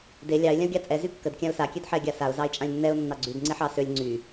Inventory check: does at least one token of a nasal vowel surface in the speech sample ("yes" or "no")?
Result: yes